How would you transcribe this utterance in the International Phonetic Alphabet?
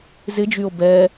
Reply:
z ɪ d͡ʒ y o̯ b ɛ

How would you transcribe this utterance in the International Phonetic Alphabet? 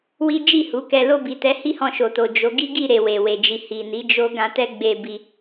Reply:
w i˦ d͡ʒ i˦˨ h u˨˦ k ɛ˧ l o˧ b i˨ t ɛ˨˦ h i˦ h ɔ̃˧ ʃ o˨ t o˨ d͡ʒ o˨˦ ɡ i˦ ɡ i˦˨ ɾ e˨ w e˨ w e˨ d͡ʒ i˨ h i˨ n i˨˦ d͡ʒ o˦ ɡ ã˧ t ɛ˦ ɡ͡b e˧ b i˧

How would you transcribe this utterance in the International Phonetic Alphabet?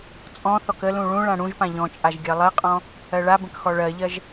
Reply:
t͡sʼ ɔ̃ θ ɔ k ə l ũ ɭ ũ ɭ ã ɽ ũ ʒ p ã ʎ ɔ̃ t͡ʃʼ a ʒ ɡʲ ɜ lˠ ɜ qʼ ɔ̃ | ɜ ɭ a b ə̃ k x ɔ ɭ ɜ ʎ ɜ ʒ

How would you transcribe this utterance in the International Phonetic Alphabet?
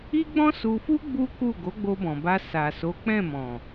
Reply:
i˦ ɡ͡b ɔ̃˦ s u˧ f u˦ ɡ͡b u˦ k u˦˨ ɡ o˨˦ ɡ͡b o˧ b ɔ̃˨ b a˧ s a˨ s o˨˦ k͡p ɛ̃˦˨ m ɔ̃˨

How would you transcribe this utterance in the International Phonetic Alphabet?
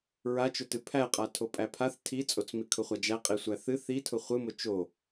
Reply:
ɹ a t͡ʃ ʊ t ɨ pʰ æ qʼ a tʰ o pʼ æ pʰ a θ tʰ i t͡sʼ o t͡s m i kʰ ʊ χʷ a d͡ʒ æ qʼ i sʷ æ θ ɨ θ i tʰ ʊ χʷ ɨ m ʊ t͡ʃ o

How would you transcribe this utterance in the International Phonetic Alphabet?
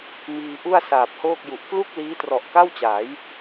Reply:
m iː˧ ʔ u˥˩ a̯ s aː˨˩ p̚ h oː˥˩ k̚ j u˨˩ ʔ k l u˥˩ k̚ l iː˦˥ t r ɔ˨˩ ʔ k a˥˩ w t͡ɕ aː˩˦ j

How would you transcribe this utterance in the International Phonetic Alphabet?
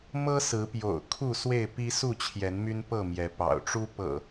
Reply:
m ɤ˦ s ɹ̩˨˦ p j o̰˨˩ ʊ̯ kʰ u˥˨ s w e˥˨ ɪ̯ p i˦ s u˥˨ t͡ɕʰ j ɛ˨˦ n m y˦ n p ɤ˥˨ m j ɛ˨˦ p ɑ̰˨˩ ʊ̯ ʈ͡ʂ u˦ p ɤ̰˨˩

